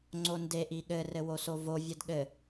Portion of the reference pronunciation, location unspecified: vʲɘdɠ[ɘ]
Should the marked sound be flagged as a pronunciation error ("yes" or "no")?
no